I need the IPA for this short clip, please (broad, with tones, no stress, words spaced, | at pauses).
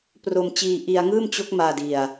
pro˧mt͡ɕiː˧ ʔi˧a̯ŋɯː˥˩mt͡ɕo˦˥k̚maː˧ di˧a̯